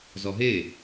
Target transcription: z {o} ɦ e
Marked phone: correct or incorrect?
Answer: incorrect